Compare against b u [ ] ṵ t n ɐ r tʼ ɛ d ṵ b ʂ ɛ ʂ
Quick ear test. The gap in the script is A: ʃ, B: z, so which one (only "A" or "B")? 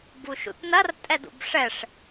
A